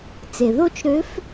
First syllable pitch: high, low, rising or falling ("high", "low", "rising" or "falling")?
low